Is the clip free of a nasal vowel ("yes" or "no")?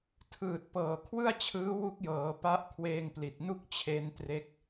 yes